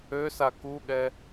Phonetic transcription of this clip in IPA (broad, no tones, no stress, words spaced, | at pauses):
øsa kuɠɛ